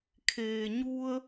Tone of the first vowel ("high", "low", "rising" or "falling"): low